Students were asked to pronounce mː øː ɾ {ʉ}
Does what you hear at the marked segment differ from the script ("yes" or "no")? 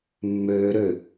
yes